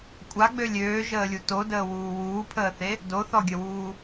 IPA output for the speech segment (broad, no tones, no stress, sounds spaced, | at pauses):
kʷʼ a ɡ͡b ø lʲ øː ʒ əː lʲ u t o d əː w uː w uː pʰ əː θ e | d o θ ɔ ɡʲ ə w uː